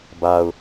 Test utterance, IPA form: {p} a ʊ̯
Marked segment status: incorrect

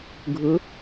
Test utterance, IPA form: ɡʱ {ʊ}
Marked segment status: correct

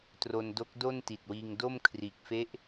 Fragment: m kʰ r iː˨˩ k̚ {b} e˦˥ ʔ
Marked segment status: incorrect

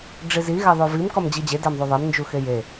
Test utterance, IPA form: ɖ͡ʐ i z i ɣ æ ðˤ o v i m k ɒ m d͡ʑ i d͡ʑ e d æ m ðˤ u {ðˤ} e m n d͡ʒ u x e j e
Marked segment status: correct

